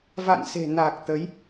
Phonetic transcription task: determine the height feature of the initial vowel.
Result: low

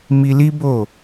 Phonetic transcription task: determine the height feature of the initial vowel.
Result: high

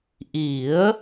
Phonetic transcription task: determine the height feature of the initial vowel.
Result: high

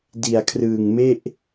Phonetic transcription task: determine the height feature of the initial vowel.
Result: high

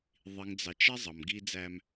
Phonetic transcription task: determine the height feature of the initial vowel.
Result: high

